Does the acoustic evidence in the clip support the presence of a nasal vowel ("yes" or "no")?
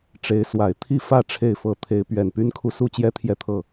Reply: no